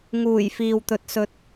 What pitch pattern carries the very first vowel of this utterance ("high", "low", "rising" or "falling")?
low